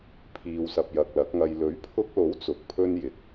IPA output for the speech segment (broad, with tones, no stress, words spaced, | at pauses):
pʰiː˧wsɐ˧p̚ jɐ˨k̚lɐ˨˥k̚ŋɐ˧j lɵ˨˥ɥpʰʊ˧k̚lo˨˥w t͡sʊ˨k̚pʰɵ˥njɪ˨˥k̚